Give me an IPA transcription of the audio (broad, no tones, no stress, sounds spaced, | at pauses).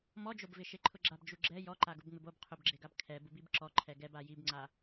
m ɔ d͡ʒ o b v ɪ ʃ e ǃʰ ʊ ɡ͡ǁ a b d͡ʒ u ɡ͡ǁ ɛ j ɔ ǃ a ɡ ʊ b ŋ͡m ɪ b o b qʰ ʊ b ɡ͡ǁ e ɡ a b kʰ ɛ b u b i b ǁ ɔ ǃʰ ɛ ɡ ɛ b a j i b ŋ͡ǀ a